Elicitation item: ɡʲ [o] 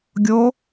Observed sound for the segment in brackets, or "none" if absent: o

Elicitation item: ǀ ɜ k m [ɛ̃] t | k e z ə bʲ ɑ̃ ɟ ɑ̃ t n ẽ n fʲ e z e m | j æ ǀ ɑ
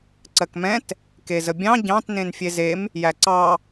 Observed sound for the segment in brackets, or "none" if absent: ɛ̃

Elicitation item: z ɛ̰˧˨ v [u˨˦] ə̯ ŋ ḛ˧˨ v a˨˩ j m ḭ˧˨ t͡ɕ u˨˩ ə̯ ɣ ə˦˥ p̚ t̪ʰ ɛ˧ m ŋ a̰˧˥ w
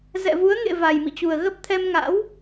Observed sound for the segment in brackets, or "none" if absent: u˨˦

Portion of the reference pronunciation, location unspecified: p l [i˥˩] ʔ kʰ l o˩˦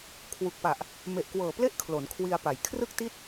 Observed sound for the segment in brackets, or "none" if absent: e˥˩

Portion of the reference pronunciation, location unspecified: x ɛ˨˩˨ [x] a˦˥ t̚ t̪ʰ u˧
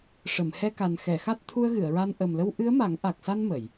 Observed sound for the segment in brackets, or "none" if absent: x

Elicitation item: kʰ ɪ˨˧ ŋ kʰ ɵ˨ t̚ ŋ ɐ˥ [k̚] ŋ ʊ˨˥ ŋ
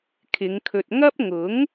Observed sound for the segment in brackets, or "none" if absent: p̚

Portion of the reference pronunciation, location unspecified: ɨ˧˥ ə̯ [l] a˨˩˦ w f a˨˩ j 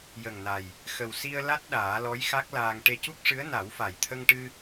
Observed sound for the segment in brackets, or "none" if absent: n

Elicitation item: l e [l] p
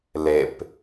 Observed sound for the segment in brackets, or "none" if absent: none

